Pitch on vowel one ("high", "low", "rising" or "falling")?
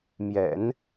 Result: low